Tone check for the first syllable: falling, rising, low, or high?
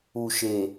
low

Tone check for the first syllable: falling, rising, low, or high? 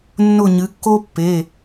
falling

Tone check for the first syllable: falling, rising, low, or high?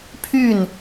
falling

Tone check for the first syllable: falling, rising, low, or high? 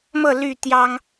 falling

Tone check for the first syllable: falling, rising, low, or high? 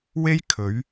high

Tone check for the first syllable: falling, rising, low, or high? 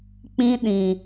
high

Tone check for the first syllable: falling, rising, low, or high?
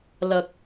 low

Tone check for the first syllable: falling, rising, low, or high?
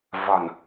low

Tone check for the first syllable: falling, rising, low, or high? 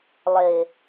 low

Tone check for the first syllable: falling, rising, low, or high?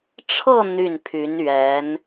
falling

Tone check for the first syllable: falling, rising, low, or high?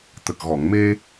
low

